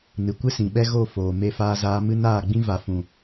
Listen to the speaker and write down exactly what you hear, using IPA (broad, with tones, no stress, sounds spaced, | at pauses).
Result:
n ɨ˨ kʷ ɨ˦ s ĩ˨ ɓ ɛ˦ ɣ o˦˨ f oː˨ m e˧ f aː˧ z aː˧ m ɨ˦ n aː˦˨ ɡ͡b ĩ˦ v a˨ f ũ˨